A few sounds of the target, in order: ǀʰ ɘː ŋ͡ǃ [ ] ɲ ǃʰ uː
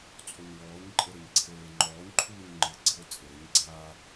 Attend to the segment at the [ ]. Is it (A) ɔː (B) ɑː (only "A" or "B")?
A